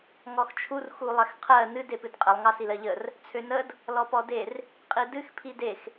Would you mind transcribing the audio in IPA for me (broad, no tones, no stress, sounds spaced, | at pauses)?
ŋ ɔ x t͡ʃʰ u r x u lˠ ɛ x qʰ ɜ n ɨ d e p ɨ d qʼ ə lˠ ŋ ɑ s i l ɜ ʎ ə r | t͡sʰ ø n ə d | l ɔ p ɔ d e r | qʼ i d ɨ x pʰ i d e x